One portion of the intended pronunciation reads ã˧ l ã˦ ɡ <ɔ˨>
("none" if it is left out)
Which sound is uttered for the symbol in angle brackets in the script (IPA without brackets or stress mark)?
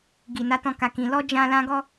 ɔ˦